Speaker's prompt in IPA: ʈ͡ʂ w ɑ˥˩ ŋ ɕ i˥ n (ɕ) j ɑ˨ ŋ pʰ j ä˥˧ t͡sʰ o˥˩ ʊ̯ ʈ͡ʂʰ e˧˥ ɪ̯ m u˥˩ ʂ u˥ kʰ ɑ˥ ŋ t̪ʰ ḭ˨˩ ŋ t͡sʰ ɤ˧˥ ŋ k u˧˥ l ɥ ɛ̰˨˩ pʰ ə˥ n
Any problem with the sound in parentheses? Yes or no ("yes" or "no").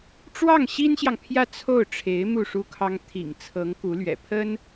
no